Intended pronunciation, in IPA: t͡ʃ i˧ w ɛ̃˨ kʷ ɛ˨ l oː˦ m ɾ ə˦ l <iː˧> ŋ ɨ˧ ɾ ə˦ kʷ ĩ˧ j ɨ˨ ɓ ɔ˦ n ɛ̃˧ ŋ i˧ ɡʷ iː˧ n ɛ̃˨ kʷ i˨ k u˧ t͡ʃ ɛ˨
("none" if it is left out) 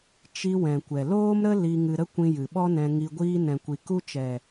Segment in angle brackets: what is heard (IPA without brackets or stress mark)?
i˧